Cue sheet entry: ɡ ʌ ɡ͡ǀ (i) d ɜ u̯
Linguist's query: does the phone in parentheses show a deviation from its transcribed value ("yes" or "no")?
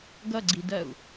no